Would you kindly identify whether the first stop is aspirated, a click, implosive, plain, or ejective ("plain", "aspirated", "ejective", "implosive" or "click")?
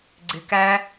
click